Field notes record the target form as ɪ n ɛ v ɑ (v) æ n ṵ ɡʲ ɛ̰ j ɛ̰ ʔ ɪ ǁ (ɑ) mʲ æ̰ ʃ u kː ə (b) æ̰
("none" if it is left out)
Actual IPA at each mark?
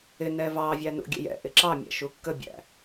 vʲ, ɑ, bʲ

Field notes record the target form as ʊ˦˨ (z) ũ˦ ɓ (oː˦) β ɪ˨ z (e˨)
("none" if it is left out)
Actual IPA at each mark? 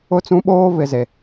t͡s, oː˦, e˨

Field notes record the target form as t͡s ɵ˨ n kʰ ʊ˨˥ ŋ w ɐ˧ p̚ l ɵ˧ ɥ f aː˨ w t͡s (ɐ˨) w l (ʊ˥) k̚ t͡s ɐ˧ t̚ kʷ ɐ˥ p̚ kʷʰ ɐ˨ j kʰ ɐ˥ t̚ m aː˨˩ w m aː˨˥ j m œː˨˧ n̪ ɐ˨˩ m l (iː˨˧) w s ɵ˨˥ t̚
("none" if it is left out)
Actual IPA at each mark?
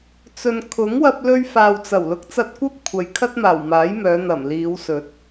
ɐ˨˩, ʊ˨˥, iː˨˧

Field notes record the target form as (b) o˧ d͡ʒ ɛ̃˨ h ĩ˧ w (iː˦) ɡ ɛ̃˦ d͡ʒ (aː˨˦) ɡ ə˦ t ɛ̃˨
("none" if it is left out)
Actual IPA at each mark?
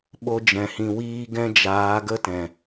ɓ, iː˦, aː˨˦

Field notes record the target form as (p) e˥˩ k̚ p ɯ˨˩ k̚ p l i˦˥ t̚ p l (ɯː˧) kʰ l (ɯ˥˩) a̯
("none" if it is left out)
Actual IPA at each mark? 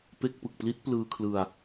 p, ɯː˧, ɯ˧

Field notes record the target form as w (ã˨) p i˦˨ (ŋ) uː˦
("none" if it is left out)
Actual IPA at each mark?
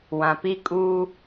ã˨, kʼ

